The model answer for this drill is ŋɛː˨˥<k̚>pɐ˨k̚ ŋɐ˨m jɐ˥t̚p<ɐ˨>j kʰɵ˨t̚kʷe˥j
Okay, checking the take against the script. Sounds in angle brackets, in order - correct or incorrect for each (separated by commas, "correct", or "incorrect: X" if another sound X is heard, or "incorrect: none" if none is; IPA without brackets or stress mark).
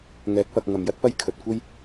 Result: correct, incorrect: ɐ˥